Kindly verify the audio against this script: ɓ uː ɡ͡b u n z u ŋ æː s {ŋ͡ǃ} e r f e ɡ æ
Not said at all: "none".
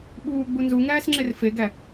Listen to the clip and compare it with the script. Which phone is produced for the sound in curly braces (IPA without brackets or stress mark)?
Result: ŋ͡ǁ